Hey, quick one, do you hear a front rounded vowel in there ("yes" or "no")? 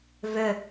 yes